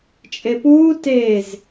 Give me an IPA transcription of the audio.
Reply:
t͡ʃʼ e p uː t e z

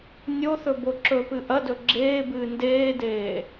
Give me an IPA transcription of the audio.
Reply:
nʲ o θ ɵ b o ǁ ɵ p ɨ ʔ ɐ d ɵ ɡ͡ǁ eː b ɨː n d eː d eː

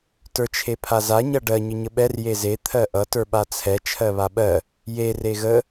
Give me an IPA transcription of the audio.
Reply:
t ə˞ t͡ʃʰ e pʰ a z a ɲ ʌ ɖ ɜ ɲ ə ɲ ə ɓ ɛ r j e z e t̪ʰ ɜ ʔ ʌ t ə˞ ɓ a t͡sʰ ɛ t͡ʃʰ ɜ β a ɓ ɜ | j e r e ɣ ə

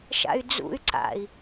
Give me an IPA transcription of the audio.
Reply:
ʃ a̰ y̯ d͡z ṵ y̯ ǀ a̰ i̯

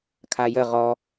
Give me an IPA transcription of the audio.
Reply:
kʰ a j ə ʁ ɔ

